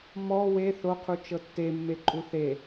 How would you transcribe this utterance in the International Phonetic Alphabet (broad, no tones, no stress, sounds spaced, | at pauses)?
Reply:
m ɔ w e θ o qʰ u t͡ʃ ɤ tː e mː e ǃʼ u θ e